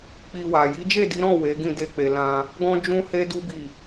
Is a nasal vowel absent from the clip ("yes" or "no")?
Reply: no